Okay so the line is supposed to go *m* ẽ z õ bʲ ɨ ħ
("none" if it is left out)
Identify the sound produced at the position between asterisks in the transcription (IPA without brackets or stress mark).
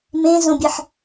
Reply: m